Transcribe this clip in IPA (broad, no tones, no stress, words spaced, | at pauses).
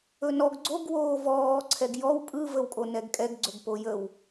ɵnɔɡ ɡ͡ǀoɡ woːvɔː ǀʰɛɡjɔw pʼɯ vəwkʼonɛɡkʼɛɡ ɡ͡ǀɵɡpojəw